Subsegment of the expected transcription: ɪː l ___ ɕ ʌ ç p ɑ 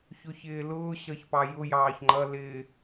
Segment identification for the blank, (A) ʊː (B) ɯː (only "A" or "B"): A